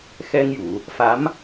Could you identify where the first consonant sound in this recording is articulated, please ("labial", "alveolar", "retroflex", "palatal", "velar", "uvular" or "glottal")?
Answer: velar